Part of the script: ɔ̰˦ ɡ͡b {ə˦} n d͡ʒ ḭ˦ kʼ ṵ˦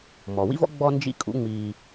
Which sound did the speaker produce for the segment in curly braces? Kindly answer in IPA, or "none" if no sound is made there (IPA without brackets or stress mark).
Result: ɔ˦